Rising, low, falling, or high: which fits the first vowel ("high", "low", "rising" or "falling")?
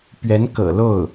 rising